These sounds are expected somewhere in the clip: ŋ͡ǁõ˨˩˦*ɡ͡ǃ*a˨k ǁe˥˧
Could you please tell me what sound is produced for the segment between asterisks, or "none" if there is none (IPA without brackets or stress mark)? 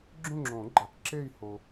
ɡ͡ǃ